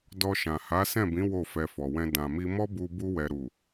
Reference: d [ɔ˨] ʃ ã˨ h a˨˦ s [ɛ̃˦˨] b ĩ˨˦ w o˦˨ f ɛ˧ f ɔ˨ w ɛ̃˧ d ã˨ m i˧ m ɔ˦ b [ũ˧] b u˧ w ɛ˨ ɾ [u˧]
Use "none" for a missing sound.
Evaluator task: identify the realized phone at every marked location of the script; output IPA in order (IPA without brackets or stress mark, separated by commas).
ɔ˧, ɛ̃˦˨, u˧, u˨